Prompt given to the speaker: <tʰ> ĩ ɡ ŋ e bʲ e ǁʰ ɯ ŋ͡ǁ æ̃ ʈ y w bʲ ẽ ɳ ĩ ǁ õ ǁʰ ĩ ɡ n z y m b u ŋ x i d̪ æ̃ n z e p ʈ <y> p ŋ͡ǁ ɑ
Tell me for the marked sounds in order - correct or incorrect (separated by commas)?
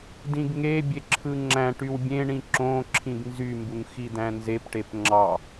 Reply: incorrect, incorrect